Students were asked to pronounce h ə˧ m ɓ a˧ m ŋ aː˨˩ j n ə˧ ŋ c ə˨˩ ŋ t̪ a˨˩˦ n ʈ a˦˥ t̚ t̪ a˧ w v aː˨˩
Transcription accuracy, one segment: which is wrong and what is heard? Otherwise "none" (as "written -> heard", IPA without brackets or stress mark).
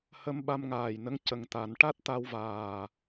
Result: none